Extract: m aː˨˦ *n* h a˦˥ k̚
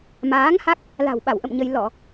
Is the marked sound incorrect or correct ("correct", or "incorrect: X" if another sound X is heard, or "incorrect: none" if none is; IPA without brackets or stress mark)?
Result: incorrect: ŋ